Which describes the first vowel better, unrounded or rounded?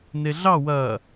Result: unrounded